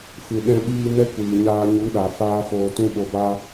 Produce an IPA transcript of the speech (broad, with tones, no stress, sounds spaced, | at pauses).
f ɨ˨ ɗ ɛ̃˧ ɓ iː˧ n ɛ˦ kʷ iː˨ ɲ aː˧ ɲ u˨˦ ɗ a˨ f aː˦ f oː˧ t ũ˦ ɓ o˧ b a˦